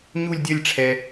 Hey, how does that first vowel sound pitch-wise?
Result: falling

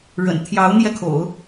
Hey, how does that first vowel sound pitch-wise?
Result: low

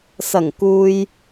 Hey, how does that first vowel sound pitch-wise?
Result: low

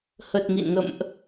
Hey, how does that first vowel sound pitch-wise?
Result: low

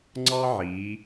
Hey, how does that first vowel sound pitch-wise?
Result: high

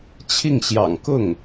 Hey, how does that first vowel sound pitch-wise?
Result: falling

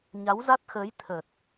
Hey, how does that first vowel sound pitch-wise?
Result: rising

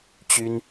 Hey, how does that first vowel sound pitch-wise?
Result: high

